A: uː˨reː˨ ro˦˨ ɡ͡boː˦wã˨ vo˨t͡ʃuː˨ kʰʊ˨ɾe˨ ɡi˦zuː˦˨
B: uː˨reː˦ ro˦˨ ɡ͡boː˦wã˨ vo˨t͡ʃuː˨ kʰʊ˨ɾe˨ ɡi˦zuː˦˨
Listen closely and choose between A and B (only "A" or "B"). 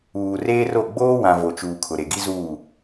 B